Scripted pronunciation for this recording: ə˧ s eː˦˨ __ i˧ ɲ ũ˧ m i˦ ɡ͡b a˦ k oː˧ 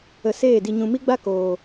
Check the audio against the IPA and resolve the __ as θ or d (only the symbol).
d